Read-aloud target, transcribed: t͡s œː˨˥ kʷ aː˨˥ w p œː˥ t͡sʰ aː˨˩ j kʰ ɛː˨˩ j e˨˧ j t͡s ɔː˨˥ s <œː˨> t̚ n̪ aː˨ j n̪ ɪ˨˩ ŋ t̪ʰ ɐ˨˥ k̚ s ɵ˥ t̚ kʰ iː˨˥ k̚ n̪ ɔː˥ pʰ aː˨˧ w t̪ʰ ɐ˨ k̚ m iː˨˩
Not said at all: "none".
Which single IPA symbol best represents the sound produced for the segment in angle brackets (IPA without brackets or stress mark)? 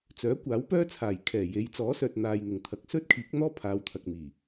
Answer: œː˨